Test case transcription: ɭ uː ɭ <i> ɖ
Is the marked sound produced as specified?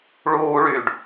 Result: no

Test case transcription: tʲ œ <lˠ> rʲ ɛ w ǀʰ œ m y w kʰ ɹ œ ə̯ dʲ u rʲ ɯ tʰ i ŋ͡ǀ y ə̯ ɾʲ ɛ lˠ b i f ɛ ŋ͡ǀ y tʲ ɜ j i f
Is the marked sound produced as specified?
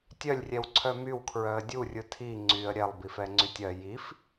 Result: no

